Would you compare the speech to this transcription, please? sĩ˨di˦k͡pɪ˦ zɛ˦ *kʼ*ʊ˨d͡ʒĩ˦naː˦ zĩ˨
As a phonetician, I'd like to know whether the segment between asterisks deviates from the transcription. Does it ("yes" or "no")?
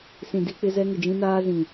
yes